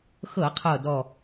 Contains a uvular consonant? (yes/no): yes